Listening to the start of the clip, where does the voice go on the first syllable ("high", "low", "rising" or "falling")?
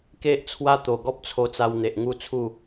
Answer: high